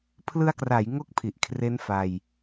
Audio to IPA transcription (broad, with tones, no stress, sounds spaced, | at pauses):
pʰ l ɯ˧ a̯ k r a˩˦ j ŋ o˥˩ k̚ pʰ i˨˩ ʔ kʰ r e˦˥ n f a˧ j